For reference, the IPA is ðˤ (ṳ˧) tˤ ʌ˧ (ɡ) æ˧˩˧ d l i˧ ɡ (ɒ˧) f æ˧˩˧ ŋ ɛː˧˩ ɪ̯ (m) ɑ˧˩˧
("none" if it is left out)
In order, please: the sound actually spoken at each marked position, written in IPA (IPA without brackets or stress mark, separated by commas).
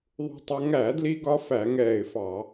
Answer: ṳ˧, ŋ, ɒ˧, f